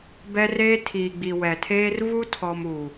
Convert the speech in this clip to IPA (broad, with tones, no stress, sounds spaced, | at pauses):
b ɛ˦ r eː˦ tʰ iː˨ ɡ͡b i˨ w ɛ˨ tʰ eː˦ r v u˦ tʰ ɔ˨ m u˨